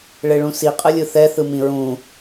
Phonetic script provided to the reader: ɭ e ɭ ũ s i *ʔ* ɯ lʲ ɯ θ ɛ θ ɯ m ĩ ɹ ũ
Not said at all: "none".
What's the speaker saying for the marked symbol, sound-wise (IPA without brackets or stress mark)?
qʼ